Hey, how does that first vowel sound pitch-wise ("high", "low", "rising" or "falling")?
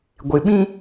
low